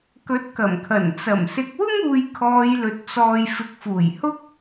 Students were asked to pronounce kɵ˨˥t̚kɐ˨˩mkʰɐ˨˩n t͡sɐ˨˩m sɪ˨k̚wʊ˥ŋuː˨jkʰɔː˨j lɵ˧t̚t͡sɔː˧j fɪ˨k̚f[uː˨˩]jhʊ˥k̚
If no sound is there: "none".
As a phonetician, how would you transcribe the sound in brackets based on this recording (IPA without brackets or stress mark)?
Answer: uː˨˩